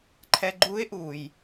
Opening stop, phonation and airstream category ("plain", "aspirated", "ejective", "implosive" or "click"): click